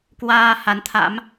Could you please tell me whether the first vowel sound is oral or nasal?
oral